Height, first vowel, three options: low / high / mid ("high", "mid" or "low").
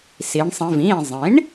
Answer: high